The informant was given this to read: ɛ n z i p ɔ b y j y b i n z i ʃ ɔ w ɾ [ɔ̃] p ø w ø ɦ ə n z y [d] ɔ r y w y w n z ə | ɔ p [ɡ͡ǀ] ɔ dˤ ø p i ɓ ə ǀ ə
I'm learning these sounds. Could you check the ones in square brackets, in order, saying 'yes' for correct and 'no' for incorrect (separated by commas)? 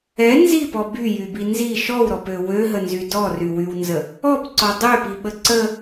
no, yes, no